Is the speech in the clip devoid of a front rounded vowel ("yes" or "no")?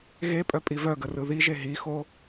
no